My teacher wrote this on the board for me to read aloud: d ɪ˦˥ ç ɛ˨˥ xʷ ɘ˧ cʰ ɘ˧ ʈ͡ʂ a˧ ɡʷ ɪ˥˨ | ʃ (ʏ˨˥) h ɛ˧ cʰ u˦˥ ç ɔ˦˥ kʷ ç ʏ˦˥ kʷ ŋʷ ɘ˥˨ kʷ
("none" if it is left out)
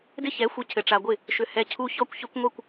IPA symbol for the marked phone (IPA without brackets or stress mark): ʏ˧